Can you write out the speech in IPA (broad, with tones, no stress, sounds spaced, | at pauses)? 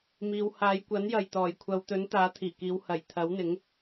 m iː˧ w h aː˨˧ j kʷ ɐ˨˥ n j ɐ˨ j t̪ ɔː˨˩ j kʷʰ ɐ˨˧ w t̪ ɵ˨˥ n t̪ aː˨˥ t̪ʰ iː˨˩ k iː˨˧ w h ɐ˨˩ j t̪ʰ ɐ˨˥ w n̪ ɪ˨˥ ŋ